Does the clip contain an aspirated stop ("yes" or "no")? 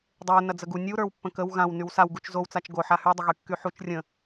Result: no